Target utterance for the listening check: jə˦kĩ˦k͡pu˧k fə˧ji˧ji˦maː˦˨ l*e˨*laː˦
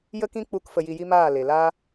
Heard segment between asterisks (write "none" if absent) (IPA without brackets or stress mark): e˨